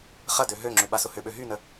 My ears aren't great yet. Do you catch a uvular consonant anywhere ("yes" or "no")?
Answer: yes